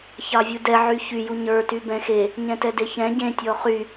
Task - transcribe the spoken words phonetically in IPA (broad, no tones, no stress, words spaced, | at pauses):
çɑvʲudɛ ʕyçyju ɲə˞ty bɛ̃xe | ɲɛ̃tɛdeçɛ̃ ɟẽ tʲɔχy